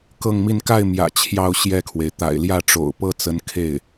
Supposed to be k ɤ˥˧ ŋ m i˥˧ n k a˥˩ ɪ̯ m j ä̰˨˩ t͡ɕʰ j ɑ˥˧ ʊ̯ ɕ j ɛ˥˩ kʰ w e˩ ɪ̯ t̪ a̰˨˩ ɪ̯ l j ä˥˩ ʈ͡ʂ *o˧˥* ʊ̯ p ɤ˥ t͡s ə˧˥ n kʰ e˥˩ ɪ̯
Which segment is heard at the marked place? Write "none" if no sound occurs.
o̰˨˩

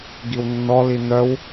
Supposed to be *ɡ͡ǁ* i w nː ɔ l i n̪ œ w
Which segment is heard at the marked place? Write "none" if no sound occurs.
ɡ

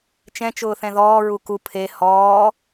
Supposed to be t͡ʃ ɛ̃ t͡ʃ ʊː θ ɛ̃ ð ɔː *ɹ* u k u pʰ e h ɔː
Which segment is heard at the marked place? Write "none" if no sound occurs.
ɹ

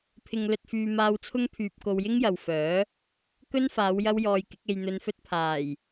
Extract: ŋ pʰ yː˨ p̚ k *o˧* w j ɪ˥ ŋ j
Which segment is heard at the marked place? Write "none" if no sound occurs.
o˧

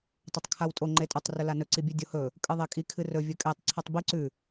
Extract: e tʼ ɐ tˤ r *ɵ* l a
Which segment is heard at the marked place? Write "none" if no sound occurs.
ɵ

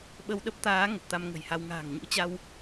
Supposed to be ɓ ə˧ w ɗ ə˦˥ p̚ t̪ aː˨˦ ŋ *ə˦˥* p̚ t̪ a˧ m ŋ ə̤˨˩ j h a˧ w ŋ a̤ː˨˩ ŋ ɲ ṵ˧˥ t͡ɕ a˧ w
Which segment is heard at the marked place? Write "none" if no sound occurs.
ə˨˩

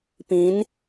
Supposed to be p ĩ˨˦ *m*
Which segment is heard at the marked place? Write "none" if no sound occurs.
n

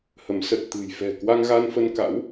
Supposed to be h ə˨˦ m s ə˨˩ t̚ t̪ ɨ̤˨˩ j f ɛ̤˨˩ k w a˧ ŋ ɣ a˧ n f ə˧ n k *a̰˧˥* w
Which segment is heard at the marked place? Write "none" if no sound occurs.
a̰˧˥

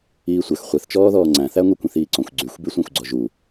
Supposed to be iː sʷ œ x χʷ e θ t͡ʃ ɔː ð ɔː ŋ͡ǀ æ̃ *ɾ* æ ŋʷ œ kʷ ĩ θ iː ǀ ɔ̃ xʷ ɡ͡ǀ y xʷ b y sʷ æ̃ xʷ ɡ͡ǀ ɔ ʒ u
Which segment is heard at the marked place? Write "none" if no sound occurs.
θ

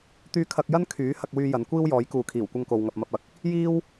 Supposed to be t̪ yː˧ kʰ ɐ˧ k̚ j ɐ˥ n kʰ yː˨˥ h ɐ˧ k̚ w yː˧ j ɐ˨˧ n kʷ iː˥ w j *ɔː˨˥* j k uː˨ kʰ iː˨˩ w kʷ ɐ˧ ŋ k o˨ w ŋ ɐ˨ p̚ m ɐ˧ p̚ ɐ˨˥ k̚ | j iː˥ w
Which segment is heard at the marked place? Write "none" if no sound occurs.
ɔː˨˥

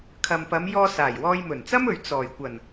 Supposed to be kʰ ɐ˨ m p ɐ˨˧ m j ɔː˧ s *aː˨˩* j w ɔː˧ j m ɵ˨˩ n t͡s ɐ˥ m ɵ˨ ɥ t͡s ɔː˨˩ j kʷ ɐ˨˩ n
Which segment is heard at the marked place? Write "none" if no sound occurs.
aː˨˩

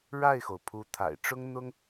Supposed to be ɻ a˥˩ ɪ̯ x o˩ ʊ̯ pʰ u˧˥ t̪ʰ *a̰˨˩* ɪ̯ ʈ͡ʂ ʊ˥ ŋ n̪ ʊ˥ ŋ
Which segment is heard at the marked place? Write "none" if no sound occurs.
a̰˨˩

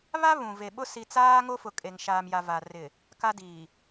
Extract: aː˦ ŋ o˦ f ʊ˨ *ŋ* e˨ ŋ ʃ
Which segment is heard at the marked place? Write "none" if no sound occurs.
kʼ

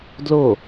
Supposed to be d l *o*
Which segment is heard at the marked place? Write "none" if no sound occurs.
o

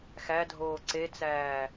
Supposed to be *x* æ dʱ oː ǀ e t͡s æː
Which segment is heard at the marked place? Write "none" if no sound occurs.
x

